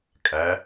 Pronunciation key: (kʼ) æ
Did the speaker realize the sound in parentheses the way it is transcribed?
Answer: yes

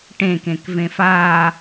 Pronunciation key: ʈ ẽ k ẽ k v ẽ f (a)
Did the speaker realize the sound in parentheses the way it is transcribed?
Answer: yes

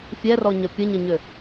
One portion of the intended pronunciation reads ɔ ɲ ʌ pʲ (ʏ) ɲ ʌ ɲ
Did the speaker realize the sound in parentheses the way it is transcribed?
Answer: no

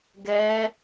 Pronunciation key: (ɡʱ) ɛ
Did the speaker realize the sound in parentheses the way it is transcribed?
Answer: no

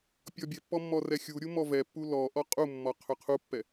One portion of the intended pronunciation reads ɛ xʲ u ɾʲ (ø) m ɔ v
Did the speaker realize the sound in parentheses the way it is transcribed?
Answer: no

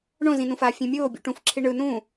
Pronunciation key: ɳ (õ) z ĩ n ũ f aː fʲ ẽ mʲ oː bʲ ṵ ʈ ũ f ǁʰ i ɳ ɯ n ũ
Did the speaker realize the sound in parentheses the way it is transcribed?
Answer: yes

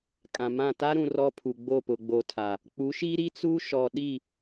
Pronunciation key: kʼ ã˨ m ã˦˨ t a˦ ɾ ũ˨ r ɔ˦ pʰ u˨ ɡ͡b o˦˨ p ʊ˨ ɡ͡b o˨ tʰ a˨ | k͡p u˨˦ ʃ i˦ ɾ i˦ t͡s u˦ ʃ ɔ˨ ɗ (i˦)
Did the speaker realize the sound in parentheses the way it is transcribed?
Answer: no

